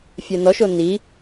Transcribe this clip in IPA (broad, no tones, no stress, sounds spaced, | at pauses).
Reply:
fʲ ɛ n ɔ ʃ o n i